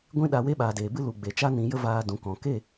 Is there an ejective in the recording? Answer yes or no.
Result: no